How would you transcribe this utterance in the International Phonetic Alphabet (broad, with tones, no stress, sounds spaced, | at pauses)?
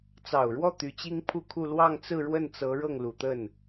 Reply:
t͡s ɑ˨˩ ʊ̯ ɻ w ɔ˥˩ t̪ y˧˥ t͡ɕ i˥ ŋ pʰ u˥˧ kʰ u˥˧ l w ɑ˥˧ ŋ t͡s ɹ̩˥˧ ɻ w ə˥˩ n t͡s ɤ˧˥ ɻ ɤ˥˩ ŋ l u˨˩ t̪ ə˥˩ n